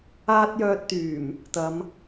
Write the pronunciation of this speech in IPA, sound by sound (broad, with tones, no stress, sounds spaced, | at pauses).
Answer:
aː˥ t̚ j œː˧ t̚ t̪ yː˨˩ m | t̪ ɐ˨˧ m